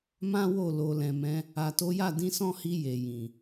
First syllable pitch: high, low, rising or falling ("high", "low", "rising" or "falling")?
high